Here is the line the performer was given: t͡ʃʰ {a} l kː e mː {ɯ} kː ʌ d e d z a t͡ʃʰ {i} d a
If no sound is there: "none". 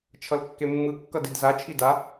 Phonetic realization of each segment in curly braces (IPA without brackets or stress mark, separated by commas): ʌ, ɯ, i